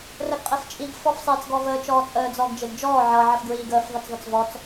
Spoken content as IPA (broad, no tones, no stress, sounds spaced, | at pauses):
r ə ɡ qʼ e f t͡ʃʼ i ɡ f ɔ f sˤ eː t͡s ɡ ɔ v əː t͡ʃ ɔː t͡sʼ əː d͡z ɔ ɡ d͡ʒ e ɡ d͡ʒ ɔː ʕ ʌ ʕ ə f ɡ ɹ iː ɡ əː f ðˤ ə t͡s ðˤ ə t͡s v ɔ t͡s